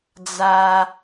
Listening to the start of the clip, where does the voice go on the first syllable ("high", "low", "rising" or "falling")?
low